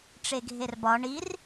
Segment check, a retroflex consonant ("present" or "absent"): present